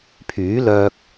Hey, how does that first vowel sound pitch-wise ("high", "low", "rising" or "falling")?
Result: rising